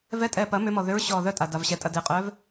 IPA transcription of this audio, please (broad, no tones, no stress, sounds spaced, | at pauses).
v ɛ tʼ ɛː p ɐ m ʏ m ɔ ð ʏ ɹ ɕ ɔː ð œ tʼ a d a v ɕ ɛ tʼ ɐ d e qʼ œː v